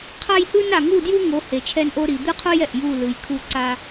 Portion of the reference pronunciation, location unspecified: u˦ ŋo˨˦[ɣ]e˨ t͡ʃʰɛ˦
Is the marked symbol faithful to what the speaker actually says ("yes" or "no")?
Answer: no